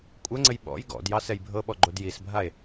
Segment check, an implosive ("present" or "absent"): present